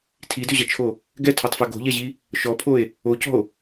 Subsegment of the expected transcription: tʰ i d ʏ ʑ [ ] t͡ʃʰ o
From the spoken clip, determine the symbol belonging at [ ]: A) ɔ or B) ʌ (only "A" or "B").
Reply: B